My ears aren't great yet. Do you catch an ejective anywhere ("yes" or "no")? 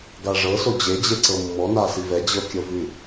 no